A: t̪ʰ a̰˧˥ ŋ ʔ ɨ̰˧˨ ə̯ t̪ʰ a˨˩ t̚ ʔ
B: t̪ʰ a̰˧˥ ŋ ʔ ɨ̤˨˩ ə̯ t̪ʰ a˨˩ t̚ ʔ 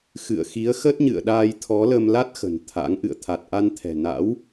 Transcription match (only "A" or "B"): A